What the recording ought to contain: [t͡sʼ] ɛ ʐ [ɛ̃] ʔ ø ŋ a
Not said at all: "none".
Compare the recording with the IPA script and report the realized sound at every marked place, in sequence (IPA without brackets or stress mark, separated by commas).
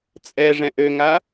t͡sʼ, ɛ̃